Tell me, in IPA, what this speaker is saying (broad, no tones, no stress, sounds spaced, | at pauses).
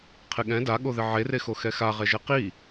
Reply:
qʰ ɪ ɠ ɛ̃ d a ɠ o ð ɪ ʕ e r e x o x ɛ x a ʁ ɛ ʒ ɛ q i